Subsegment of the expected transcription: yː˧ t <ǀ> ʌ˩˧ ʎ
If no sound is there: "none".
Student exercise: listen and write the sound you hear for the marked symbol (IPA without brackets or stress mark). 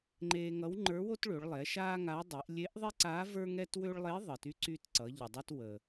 ǀ